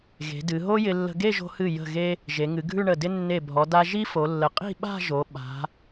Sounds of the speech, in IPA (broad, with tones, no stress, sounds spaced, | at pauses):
ɣ e̤˩˧ d ɨ˩˧ ɦ o˥ j ɪ˧ lː ə̤˧ ɡ e˥˧ ʒ o̤˧ h ɨ˧˩ j ə̤˧˩ ɣ e˧ | ʒ e˩˧ ŋ ɨ˩˧ ɡʱ ʉ˥˧ ɳ ə˧˩ d ɪ˥ nː e˧˩ bʱ ɔ˩˧ d a˧ ʒ i˥ f o˩˧ lː ə˩˧ qʼ i̤˥˧ ɓ a̤˥˧ ʒ o˩˧ ɓ a̤˩˧